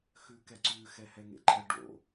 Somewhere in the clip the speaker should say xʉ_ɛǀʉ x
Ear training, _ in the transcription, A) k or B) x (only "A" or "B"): A